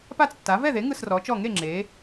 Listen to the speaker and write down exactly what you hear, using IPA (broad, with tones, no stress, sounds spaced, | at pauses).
p a˥˨ t͡s tː a˩˥ v ɛ˥˨ ð e˩˥ ŋ ɯ˥˨ s r ɔ˩˥ t͡ʃ ɔ˥˨ ŋ e˥˨ ŋ͡ǁ e˩˥